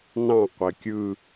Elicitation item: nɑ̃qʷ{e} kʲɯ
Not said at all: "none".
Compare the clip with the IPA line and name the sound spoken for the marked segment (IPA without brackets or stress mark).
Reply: e